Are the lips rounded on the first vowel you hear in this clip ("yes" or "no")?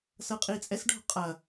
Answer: no